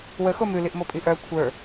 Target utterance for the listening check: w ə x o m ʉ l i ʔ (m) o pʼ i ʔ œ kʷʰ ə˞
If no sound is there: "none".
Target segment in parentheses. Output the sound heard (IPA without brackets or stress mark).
m